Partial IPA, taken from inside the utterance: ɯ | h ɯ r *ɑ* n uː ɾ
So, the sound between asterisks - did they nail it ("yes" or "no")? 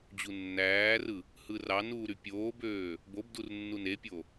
yes